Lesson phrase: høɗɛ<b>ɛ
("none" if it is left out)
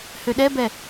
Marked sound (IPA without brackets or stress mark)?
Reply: b